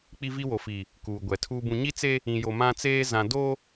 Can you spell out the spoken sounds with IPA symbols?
k͡p i˦ v i˦ w o˨ f i˨ | k uː˨ ɡʷ ɛ˨ tʰ uː˦ b ũ˦ ɲ i˦ t͡s e˦ | ĩ˨ j o˨ m ã˦ t͡s eː˦ z ã˨ d o˦

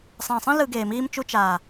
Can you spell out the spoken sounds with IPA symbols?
sˤ ɛ̃˨ sˤ ĩ˦ l ɯ˧ ɡ eː˨ m iː˧ m t͡ʃ u˧ t͡ʃ aː˨

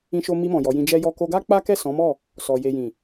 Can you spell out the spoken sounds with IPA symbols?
ĩ˧ ʃ o˧ m i˧ m ɔ̃˨ j ɔ˨˦ j ĩ˧ d͡ʒ ɛ˦ j ɔ˦ k o˧ ɡ a˦ k͡p a˦ k ɛ˦˨ s ɔ̃˨˦ m ɔ˦˨ | s ɔ˨ j e˨ j ĩ˨

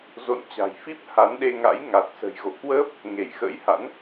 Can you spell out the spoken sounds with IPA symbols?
z o̰˧˨ n t͡ɕ a̤˨˩ j f i˦˥ p̚ h a˨˦ n ɗ e˧ ŋ a̰˧˥ j ŋ a˨˩ t̚ s ə̤˨˩ j ɣ o̰˧˨ k w əː˦˥ p̚ | ŋ e˧˩ j x ə̰ː˧˥ j h a̰˧˥ n

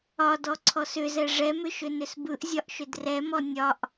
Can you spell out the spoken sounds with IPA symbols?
ɒ d ɔ ǀʰ ɔ s ʏ z ɛ ʐ ɛ m ʏ ʃ ʏ n ʏ s b ɯ ʔ zʲ ɒ ʔ ʃ ʏ d r ɛ m ɔ nʲ ɒ ʔ

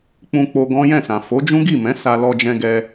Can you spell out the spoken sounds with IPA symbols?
k͡p ũ˧ k͡p o˧ ɡ ɔ̃˦ j ɛ̃˦˨ s ã˨ f o˨˦ d͡ʒ ũ˦ ɡ i˦˨ m ɛ̃˨˦ s a˧ l ɔ˧ d͡ʒ ɛ̃˧ ɡ ɛ˧

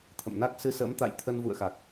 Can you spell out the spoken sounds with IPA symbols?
t̪ʰ ə̰˧˨ m n a˦˥ k̚ s ɨ˧ s ə̰ː˧˥ m t̪ a̰˧˨ j t̪ʰ ə˧ n v ṵ˧˨ ə̯ x a˨˩ k̚

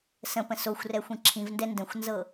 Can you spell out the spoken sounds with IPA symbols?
s ə̃ p ə̃ s o xʷ r ɛ xʷ ĩ ǁʰ ĩ v n d ɛ n d ə̃ xʷ n z ɤ

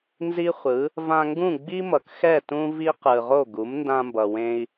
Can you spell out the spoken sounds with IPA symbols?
n z i˥ χʷ ɯ˩˥ | v ã˧ ŋ ɡ ũ˥˩ ɡ͡b i˥ m ʌ˩ k x ɛ˥˩ t ũ˥ v i˥ q ɯ˩ ʁ o˥˩ ɡ u˩˥ m n d ã˧ m b ʌ˩ w ẽ˧ i̯

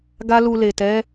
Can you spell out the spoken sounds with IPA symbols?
ɡ a˦ l u˧ l e˨ t ɛ˨˦

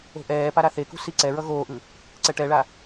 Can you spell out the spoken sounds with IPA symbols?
o̤ ʔ ɛː p a ɾ a θ e k ṳ s i ǀ ɛ ɹ ʌ ɣ oː ʔ ɯ | ǀ ɛ ʈ ɛ ɭ a

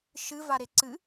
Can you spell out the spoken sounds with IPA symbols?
ʃ ɨ v a ɾ e ǀ ɨ

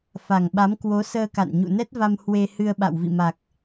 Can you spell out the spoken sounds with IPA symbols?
f a˨˩ ŋ ɓ a˨˦ m k w o˨˦ s əː˧ k a̰˧˨ n ɲ ṵ˧˨ n ɛ˦˥ t̚ v a˧ m h w e˧ h ɨ˧ ə̯ ɓ a̰˧˨ w v ḭ˧˨ m a˨˩ k̚

